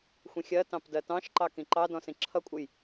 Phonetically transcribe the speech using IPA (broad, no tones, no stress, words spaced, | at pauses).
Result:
xʷĩxʲɜtɑ̃p dɜtɑ̃ʃǃɑ kĩǃɑdɔ̃ sĩǁʰʌkʷʼəj